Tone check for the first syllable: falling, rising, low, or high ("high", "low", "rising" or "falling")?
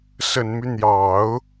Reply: low